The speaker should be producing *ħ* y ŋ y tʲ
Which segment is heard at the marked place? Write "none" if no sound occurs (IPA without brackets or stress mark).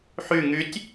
ħ